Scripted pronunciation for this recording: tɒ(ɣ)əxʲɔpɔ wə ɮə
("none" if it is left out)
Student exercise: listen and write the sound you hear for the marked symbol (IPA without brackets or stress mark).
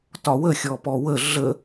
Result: w